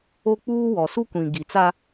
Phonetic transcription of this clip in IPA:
o˦k͡puː˦ wɔ˨su˦kʷĩ˨ ɡi˨t͡sa˦

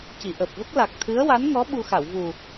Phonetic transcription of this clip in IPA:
ci˨˩˨ʔəː˨˩p̚və˦˥k̚ la˨˩k̚t̪ʰɨ˧˥ə̯wa˧˥nŋɔ˧˥ ɓu˧ xa˨˩˨wvu˨˩

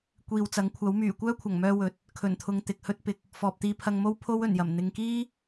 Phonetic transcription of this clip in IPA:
kʷiː˨wt͡sɐ˨˥ŋkʷʰɐ˨˥w myː˨˩kʷœː˥ kʷʰɐ˨˩ŋmœː˧ wɵ˨t̚ | kʰɵ˨˩nt̪ʰʊ˨ŋ t̪ɪ˨k̚hɵ˥t̚pɪ˨k̚ | fɔː˨p̚t̪iː˧pʰɐ˧ŋmo˥w pʰo˥w ɵ˨˩njɐ˨˩m n̪ɪ˨ŋkiː˥

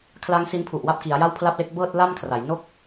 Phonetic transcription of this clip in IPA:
kʰla˦˥ŋ si˦˥npʰu˨˩ʔwa˥˩p̚ ki˩˦a̯ja˥˩wpʰla˥˩p̚le˥˩k̚ bɤː˥˩t̚la˥˩mkʰra˩˦j no˥˩k̚

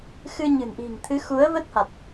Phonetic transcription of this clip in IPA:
xɨ˧ɲɨ̤˨˩nʔi̤˨˩ŋt̪ʰɨ˨˦ xu˨˦ə̯və˦˥t̚ha˨˩t̚

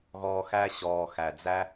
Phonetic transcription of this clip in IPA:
ɣɔː˧xæ˦ ɕɔː˨ xæ˨d͡zæ˦

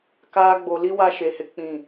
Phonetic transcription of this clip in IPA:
kaː˦ ɡ͡bo˨li˦ wa˦ʃe˨˦ hɪ˨k͡pĩ˦˨

